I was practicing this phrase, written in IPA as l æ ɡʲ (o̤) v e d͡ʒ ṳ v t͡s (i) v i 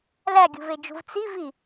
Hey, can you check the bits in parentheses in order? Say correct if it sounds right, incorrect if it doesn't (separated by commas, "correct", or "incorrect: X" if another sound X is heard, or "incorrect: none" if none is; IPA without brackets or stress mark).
incorrect: ṳ, correct